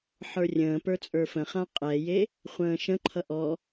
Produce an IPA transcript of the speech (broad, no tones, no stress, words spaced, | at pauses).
ħə˞rʲə̃ːpə˞ t͡sʼə˞fə̃χã qʼɛje | χʷə̃ːʃə̃ǃʰʌ ʔɔ